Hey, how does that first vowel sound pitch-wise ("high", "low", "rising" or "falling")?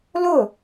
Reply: falling